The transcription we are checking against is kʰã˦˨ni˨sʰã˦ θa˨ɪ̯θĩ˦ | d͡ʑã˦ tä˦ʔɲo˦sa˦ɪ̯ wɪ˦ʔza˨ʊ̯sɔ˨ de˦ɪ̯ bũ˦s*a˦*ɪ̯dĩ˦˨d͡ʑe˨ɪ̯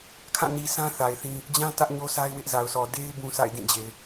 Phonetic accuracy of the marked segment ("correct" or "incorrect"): incorrect